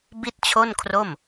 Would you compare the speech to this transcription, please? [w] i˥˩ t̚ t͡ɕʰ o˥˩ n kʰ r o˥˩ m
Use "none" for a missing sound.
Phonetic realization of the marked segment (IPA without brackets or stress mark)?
b